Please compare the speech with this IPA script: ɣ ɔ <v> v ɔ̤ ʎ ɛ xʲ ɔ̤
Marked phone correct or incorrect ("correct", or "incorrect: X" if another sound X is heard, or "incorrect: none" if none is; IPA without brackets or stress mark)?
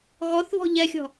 incorrect: θ